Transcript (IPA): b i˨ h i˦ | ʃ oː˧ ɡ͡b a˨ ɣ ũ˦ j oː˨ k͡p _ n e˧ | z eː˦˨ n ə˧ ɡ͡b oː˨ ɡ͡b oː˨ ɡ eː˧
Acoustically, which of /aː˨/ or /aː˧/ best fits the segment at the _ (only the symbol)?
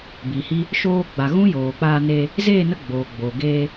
aː˧